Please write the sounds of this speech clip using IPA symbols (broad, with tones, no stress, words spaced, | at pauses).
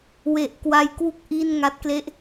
we˨˩ʔ kwa˦˥jkwu˥˩k̚ ʔi˥˩n ŋa˦˥t̚kle˥˩ʔ